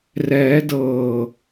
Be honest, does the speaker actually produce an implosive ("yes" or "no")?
no